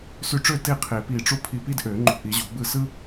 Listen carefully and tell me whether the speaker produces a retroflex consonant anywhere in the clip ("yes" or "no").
yes